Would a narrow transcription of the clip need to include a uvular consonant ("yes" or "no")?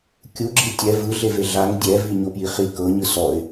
yes